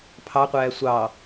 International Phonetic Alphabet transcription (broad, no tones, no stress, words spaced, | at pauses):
pʰɑqʷæː sʷɑ